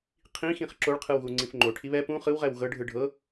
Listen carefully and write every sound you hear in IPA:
qʰ ĩ x ĩ χ ǁ o ɭ qʰ ɯ w ɣ u ŋ͡ǀ ĩ f ŋ͡ǃ o ʈʰ i β ɛ p ũ χ ɯ w ʁ ɛ w ɣ ɤ ɖʱ ɯ ɖʱ ɤ

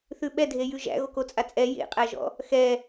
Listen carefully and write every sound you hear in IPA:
θ ʉ ɓ ɛ dʱ e j ʉ ʒ æ̰ ɣ o k o t͡sʼ a t͡sʼ ɛ j ḛ qʼ æ ʒ ɔ̰ | x ɛ

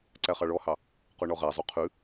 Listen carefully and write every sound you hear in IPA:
ǀ æ χ ɑ ɭ ɔ h ɑ | q o ɳ ɔ ʁ æ zˤ o qʰ ʉ

